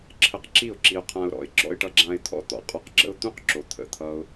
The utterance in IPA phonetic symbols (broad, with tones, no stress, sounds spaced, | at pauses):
ǁʰ ə˧ q ǁ i˦˨ ʊ̯ ǁ i˧ ʊ̯ qʰ ã˧ ʊ̯ ɾ ɔ̰˨ ɪ̯ ɡ͡ǁ ɔ̰˧ ɪ̯ ʈ ʌ˧ ɡ͡ǁ ã˧ ɪ̯ t̪ʰ ɔ̰˦ t̪ ɔ̰˨ qʼ ɔ˧ q ɡ͡ǁ ə̰˦ ʊ̯ t̪ ũ˦ q ǁ o˨ t̪ʰ ə̰˧ t̪ʰ ʌ˦ ʊ̯